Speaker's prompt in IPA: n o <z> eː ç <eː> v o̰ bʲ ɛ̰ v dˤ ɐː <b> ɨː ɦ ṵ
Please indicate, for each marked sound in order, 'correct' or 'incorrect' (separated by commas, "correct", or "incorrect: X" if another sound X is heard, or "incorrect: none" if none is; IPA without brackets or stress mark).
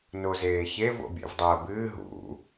correct, incorrect: e, correct